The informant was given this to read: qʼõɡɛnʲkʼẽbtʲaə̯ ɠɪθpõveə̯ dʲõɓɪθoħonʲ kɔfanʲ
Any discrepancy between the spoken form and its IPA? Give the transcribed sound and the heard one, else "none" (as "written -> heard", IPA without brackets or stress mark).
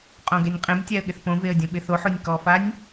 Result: kʼ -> qʼ